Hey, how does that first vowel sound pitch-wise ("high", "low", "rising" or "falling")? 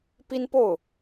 high